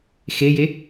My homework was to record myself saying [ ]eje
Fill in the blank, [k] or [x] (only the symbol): x